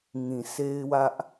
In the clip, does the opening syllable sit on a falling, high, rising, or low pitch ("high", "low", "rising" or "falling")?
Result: low